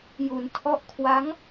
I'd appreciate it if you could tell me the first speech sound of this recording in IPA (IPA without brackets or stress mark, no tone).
j